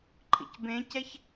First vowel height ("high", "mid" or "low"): high